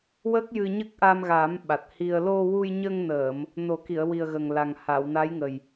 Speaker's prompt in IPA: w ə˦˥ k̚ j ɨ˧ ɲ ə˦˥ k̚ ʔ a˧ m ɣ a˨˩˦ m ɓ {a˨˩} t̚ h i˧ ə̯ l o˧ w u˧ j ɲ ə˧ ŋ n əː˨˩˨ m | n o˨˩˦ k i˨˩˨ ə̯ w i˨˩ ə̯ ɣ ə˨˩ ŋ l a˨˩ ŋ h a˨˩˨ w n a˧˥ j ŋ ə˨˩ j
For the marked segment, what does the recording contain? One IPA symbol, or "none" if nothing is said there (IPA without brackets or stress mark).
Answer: a˨˩